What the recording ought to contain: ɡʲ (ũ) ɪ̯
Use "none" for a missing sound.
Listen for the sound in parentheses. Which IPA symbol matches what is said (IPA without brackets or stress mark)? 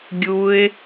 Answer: u